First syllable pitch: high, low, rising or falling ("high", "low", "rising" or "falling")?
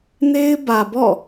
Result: high